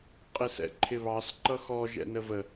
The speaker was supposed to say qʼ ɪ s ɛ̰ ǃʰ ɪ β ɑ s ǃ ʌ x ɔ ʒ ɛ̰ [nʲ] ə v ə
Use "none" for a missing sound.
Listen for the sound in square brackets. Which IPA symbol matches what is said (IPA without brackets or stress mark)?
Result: n